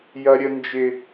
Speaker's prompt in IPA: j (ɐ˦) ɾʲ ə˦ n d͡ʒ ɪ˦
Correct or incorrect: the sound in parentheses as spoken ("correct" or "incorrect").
correct